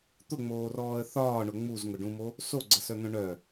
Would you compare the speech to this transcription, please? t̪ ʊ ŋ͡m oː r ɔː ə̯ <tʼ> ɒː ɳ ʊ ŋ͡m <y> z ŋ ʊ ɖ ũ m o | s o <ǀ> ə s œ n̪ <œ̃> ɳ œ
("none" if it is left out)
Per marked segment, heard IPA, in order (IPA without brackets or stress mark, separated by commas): θ, u, ɡ͡ǀ, œ̃